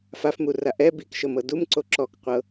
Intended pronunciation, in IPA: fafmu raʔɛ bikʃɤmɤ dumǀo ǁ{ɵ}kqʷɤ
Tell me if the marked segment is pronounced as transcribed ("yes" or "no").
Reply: no